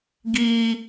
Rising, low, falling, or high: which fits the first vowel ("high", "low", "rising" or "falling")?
high